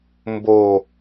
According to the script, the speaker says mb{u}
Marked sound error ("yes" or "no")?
yes